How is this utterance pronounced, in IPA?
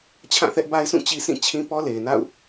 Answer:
t͡ɕʰ ã˦˨ θ ɛ˦ ʔ b a˦ ɪ̯ s ũ˦˨ t͡ɕ i˦ s ĩ˦˨ t͡ɕʰ ĩ˦ p ɔ˦ l e˨ ɪ̯ n a̰˦˨ ʊ̯

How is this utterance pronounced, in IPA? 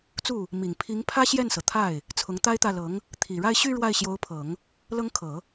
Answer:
t͡s u˥˩ | m i˨˩ ŋ pʰ i˧˥ ŋ pʰ ä˥ ɕ j ɛ˥˩ n s ɤ˩ t̪ʰ a˥˩ ɪ̯ | t͡sʰ ʊ˧˥ ŋ t̪ a˥ ɪ̯ t̪ ä˥˩ l ɤ˧˥ ŋ | t̪ʰ i˨˩ ɻ a˥˧ ɪ̯ ɕ y˥˧ ɻ w a˥˩ ɪ̯ ɕ j o˧˥ ʊ̯ pʰ ɤ˨˩˦ ŋ | l ɤ˥ ŋ kʰ ɤ˨˩˦

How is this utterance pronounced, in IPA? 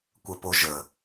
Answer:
kʷ ə p o ʒ ə

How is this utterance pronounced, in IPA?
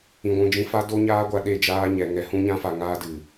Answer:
ĩ˧ ɡʷ ũ˧ d͡ʒ ĩ˦ f a˦ d o˦ ɲ aː˦ ɡʷ a˧ ɗ e˦˨ d͡ʒ aː˦ ɲ ɛ˧ ŋ ɛ˧ h ũ˦ ɲ ã˦ f a˧ ŋ aː˦ d ɨ˨

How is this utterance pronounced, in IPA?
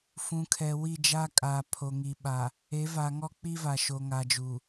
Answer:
f ũ˨ kʰ ɛ˨ w i˦˨ d͡ʒ a˦ kʼ aː˨ pʰ o˨ ŋ i˨ ɓ a˨ | e˨˦ v a˨ ŋ ɔ˦ k͡p i˦ v a˨ ʃ o˨ ŋ a˨ d͡ʒ u˨

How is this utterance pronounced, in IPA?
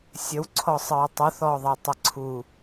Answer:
sʲ ə w ǀʰ ɔ sˤ ə ɹ tˤ u θ ɔ ðˤ ɛ tˤ ə ǀʰ u

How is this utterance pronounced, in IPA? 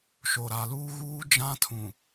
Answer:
ʃ o˨ ɾ a˨ l uː˦ ɣ uː˦ d͡ʒ ã˦ tʰ ũ˨

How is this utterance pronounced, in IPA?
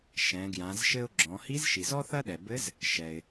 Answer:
ʃ ɛ̃˩˧ ɡ j ã˩˧ z ʃ ɘ˧ ʊ̯ ɡ͡ǁ ɔ̃˩˧ h i˧˥ z ʃ i˩ z ɔ˥ θ ɐ˥ ɗ ɛ˩ b ɘ˧˥ z | ʃ ɛ˩ ɪ̯

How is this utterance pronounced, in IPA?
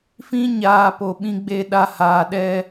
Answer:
f ĩ˧ ɲ aː˨ p o˨ ɓ ĩ˧ ɡ͡b e˧ ɗ a˧ h aː˨ ɗ ɛ˧

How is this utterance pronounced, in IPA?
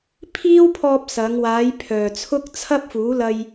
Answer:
pʰ iː˥ w pʰ ɔː˧ p̚ s ɐ˨˧ ŋ w aː˨˧ j pʰ œː˨ t͡sʰ ʊ˥ k̚ t͡sʰ ɐ˥ p̚ f uː˨˥ l ɐ˧ j

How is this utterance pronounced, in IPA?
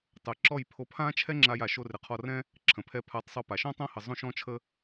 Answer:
tˤ ə˨ ǁ ɔ˦˨ j pʰ o˧ pʰ ã˦ t͡ʃʰ ɛ˦ ŋ͡ǁ a˧ j a˨ ʃ o˧ r ɪ˨˦ qʰ ɔ˧ r ɛ̃˦ | ǁʰ ə̃˨ pʰ ɛ˧ pʰ a˨˦ tˤ sˤ o˧ p a˨ ʃ ɔ̃˦ tˤ õ˦ h ə˧ zˤ õ˦ ʃ ɔ̃˦ t͡ʃʰ ə˦

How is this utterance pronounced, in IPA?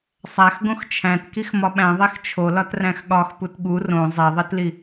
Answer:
sˤ æ x ɡ õ x t͡ʃʰ æ̃ t k i x m ɒ ɓ æ̃ ðˤ e x t͡ʃʰ o l ɒ t r æ̃ x ɠ ɒ x p u t ɠ u r õ zˤ e ðˤ i t l i

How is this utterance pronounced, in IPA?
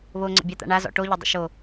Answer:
β o ŋ͡ǀ ə̰ bʲ a t̪ a̰ ɳ a z ɔ̰ ʈ o ʎ ɐ dˤ ə̰ ʃ o

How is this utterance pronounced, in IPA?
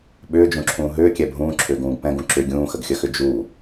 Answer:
ɓ ʏː d͡ʒ ũ ǁʰ ũː ɦ ʏː kʲ ɛ bʱ ũː ǁʰ ʏː ɡ ũː ɡ p ɛ̃ ɡ ũ ǁ ʏ ɡʲ ũː x ə ɡ xʲ ə x ʏ d͡ʒ u

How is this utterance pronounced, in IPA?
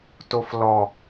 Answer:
t o f l ɔ

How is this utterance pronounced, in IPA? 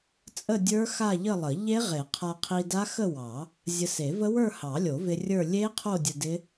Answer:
t͡sʼ ə˥˧ dʲ ə˞˦˥ x a˥˧ ʎ ə˥˧ lˠ ə˨˩˦ ʎ e˦˥ ʁ e˨˩˦ qʰ a˧ qʰ i˧ d a˦˥ x ə˥˧ w ɑ˨˩˦ | zʲ ə˧ s e˨˩˦ v ə˦˥ w ə˞˥˧ h ɑ˨˩˦ lʲ o˨˩˦ v ɪ˧ rʲ ə˞˥˧ lʲ e˦˥ qʰ o˥˧ dʲ ə˧ d ɪ˦˥

